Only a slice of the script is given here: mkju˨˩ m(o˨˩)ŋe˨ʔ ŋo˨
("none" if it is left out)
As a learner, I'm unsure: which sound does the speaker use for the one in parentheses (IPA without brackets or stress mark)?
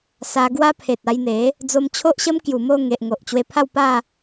o˥˧